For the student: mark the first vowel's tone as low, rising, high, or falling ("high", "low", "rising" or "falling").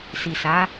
low